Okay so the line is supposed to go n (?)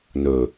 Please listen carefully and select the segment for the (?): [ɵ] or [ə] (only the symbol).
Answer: ɵ